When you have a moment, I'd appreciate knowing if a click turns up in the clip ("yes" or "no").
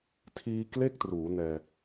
no